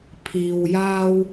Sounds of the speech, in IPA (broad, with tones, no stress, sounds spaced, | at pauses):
pʰ iː˨ w j aː˧ w